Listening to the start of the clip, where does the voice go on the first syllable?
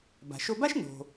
low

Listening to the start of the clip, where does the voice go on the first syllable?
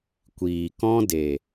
low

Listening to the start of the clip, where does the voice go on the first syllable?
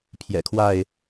low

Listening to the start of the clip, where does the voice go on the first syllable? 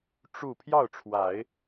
falling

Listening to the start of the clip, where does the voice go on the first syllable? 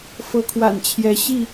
rising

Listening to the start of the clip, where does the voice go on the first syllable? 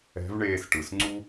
rising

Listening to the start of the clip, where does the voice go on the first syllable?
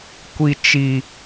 high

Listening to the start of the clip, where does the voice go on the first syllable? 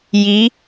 rising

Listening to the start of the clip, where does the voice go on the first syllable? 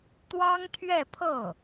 high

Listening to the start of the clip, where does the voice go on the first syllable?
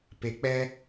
low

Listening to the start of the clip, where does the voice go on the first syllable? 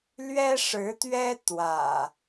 high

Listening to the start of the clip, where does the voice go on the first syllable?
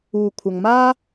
low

